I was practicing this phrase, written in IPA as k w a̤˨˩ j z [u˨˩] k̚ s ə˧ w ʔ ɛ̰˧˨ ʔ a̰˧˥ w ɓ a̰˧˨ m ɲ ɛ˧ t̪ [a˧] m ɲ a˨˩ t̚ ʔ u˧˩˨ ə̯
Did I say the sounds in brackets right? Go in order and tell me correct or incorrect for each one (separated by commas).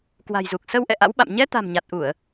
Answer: correct, incorrect